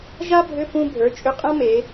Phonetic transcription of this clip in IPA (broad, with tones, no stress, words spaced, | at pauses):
ʒa˥bʱʏ˧˥˧ pũ˥ bʱə˞˩˧˩t͡ʃʼʏ˧˥˧qʼã˥ me˩˧